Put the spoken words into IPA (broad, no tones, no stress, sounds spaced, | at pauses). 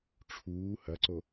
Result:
ʈ͡ʂʰ uː h ɐ ǀ o